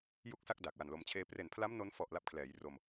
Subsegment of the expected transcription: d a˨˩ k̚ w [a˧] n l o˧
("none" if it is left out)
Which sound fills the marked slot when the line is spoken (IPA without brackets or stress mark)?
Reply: a˨˩